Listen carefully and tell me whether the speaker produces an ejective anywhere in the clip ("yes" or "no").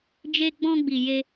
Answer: no